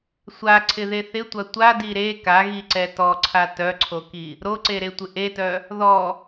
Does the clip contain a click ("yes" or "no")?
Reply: yes